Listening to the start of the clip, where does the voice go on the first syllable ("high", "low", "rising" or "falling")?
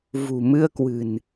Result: low